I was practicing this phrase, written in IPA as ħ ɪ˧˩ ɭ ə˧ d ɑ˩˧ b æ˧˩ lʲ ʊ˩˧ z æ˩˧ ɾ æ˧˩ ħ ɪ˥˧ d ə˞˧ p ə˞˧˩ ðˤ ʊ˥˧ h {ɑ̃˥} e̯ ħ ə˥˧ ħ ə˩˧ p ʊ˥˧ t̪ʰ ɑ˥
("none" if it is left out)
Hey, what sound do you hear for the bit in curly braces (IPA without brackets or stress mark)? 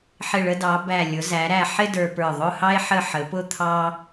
ɑ˥